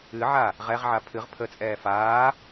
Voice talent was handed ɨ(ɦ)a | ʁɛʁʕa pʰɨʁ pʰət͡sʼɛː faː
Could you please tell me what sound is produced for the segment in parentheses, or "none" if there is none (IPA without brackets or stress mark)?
ʕ